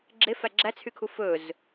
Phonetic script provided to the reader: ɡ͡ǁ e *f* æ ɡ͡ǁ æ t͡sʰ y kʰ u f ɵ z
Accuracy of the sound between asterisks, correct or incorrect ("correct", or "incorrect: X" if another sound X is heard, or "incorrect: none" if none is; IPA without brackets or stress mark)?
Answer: correct